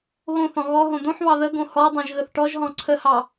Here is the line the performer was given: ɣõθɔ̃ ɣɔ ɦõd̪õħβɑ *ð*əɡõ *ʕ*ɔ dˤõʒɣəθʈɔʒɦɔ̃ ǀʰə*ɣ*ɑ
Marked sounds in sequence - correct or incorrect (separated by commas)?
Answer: correct, incorrect, incorrect